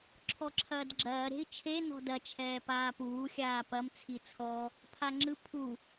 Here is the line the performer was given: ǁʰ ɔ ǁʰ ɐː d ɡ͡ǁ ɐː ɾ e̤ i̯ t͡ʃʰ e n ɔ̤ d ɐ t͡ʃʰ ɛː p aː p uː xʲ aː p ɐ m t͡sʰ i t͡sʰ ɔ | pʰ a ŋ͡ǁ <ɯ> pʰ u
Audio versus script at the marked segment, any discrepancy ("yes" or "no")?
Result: no